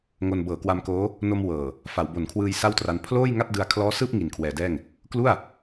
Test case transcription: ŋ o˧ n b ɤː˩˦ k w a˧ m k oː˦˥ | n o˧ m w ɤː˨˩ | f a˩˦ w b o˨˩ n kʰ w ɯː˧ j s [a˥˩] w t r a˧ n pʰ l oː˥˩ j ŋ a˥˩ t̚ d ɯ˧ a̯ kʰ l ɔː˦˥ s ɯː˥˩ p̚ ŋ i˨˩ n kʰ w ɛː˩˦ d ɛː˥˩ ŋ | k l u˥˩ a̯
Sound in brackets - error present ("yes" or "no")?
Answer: no